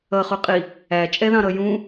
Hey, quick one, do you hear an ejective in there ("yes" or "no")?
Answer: yes